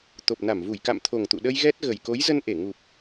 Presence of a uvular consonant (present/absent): absent